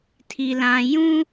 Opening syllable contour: low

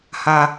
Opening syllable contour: high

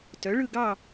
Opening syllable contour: rising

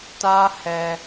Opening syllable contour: high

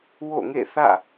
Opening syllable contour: falling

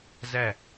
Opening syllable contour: falling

